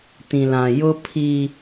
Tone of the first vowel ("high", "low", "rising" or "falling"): low